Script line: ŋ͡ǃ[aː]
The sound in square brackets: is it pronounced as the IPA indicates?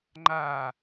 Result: yes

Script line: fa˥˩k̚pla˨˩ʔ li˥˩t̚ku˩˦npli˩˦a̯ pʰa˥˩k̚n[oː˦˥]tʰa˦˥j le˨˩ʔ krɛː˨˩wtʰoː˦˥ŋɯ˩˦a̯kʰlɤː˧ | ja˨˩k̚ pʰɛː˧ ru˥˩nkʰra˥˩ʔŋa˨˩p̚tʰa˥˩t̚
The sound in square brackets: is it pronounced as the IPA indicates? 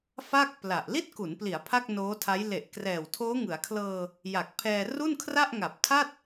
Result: yes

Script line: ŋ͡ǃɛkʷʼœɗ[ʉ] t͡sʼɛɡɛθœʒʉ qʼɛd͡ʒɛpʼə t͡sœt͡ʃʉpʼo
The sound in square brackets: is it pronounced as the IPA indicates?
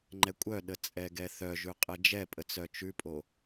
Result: no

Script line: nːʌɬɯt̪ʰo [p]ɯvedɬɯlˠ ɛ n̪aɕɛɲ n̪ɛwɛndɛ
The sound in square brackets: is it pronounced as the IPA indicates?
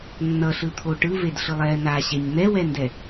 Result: no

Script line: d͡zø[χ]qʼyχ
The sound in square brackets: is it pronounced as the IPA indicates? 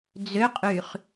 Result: no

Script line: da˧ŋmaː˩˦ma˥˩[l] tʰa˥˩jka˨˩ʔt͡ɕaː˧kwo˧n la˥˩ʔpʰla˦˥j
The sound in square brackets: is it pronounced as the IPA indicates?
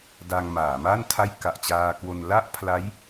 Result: no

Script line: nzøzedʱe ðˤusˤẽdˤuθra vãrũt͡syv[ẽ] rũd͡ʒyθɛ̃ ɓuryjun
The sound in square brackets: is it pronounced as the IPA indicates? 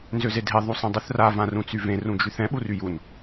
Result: yes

